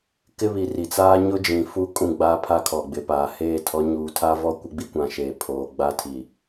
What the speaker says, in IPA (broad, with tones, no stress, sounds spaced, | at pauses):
k ɪ˦ β i˨ r i˨ t͡s aː˦ ɲ ʊ˦ d͡ʒ ĩ˨ f u˦ kʼ ũ˦˨ ɡ͡b aː˦ pʰ a˦ kʰ ɔ˨ ɡ͡b ɪ˨ p aː˨ h eː˦˨ tʰ ɔ˨˦ ɲ uː˨ tʰ a˦ v ɔ˦ kʷ ɪ˦ ɡ͡b i˦ kʷ ã˨ ʃ eː˨ pʰ oː˨ ɡ͡b a˦ tʰ i˨